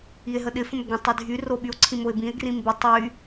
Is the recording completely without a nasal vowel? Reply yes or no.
no